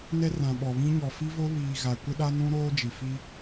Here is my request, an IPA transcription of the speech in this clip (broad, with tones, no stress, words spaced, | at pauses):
nɛ˦rã˨ɓɔ˨βĩ˦ ɲɔ˨fi˦vo˦ βiː˨ ɣa˨ kʷɪ˦ɗa˦ nũ˦ɾoː˦d͡ʒi˨fi˦